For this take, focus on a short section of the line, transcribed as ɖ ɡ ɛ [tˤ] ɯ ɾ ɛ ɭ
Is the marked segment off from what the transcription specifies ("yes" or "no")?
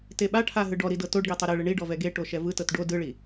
no